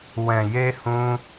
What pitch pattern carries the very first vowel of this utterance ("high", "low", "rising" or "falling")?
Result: low